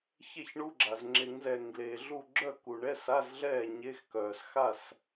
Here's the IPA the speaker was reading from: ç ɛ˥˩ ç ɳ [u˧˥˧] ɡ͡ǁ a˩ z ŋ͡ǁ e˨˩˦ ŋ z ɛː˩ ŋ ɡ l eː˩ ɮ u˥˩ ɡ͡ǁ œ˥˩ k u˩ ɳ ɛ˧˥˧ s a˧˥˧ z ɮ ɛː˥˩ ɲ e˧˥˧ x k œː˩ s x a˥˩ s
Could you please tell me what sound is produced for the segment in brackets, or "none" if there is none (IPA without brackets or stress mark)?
u˧˥˧